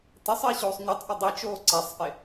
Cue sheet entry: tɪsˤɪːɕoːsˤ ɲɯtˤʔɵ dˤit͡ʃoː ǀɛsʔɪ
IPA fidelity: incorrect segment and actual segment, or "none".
s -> sˤ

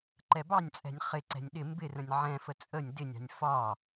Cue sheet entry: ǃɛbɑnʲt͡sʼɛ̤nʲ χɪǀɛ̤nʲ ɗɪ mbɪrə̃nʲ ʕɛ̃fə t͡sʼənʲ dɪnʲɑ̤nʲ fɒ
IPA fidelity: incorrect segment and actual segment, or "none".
none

